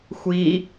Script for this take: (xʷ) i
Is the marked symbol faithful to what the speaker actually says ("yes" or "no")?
yes